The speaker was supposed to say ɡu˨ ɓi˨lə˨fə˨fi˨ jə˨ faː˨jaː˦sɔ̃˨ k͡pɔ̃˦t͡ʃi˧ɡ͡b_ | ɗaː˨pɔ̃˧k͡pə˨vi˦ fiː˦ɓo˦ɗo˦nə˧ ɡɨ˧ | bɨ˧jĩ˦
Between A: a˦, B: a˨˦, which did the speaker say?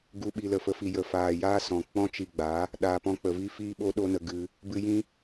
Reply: B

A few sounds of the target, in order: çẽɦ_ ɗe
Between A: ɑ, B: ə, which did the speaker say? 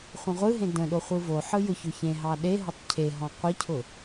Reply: A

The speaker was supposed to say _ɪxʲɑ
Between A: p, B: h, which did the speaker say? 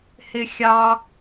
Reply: B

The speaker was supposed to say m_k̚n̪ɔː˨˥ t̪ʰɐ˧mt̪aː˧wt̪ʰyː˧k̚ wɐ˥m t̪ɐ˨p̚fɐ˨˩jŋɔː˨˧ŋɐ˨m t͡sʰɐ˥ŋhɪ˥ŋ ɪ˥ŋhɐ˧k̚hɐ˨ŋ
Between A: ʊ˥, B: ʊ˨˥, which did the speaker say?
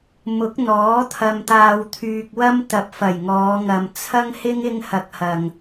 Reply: B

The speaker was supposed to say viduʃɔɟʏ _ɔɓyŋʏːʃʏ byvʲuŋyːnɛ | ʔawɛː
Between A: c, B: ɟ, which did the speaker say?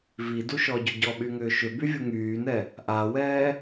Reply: B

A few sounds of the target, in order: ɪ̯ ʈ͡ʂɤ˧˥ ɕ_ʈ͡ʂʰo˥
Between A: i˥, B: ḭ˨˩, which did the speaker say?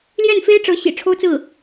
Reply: B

